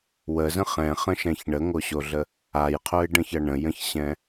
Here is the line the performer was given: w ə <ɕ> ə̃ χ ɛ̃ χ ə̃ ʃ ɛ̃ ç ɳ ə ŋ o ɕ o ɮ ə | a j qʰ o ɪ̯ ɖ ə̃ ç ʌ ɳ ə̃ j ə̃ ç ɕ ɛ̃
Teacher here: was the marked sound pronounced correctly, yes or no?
no